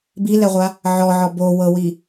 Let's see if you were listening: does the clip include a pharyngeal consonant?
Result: yes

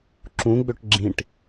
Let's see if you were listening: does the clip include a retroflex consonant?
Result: yes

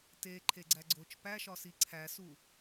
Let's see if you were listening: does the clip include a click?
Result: yes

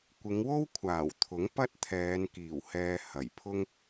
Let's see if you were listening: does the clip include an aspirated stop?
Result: yes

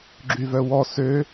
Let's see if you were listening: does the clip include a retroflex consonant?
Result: no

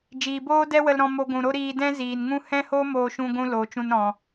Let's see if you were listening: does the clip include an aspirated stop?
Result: no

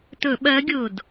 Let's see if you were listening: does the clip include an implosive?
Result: yes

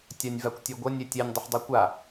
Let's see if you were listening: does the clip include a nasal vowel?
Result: no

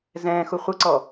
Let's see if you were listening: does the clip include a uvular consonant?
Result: yes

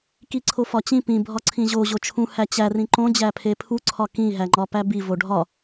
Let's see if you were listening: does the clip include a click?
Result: yes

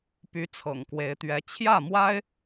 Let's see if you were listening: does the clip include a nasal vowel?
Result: no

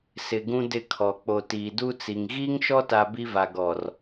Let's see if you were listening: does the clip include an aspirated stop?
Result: yes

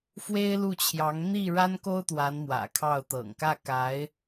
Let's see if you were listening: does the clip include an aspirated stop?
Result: yes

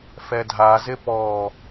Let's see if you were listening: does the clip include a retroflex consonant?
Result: no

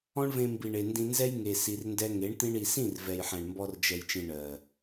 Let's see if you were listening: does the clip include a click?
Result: no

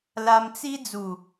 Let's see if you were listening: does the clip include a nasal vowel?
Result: no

